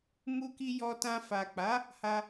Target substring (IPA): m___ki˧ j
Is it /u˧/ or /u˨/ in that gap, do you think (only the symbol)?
u˧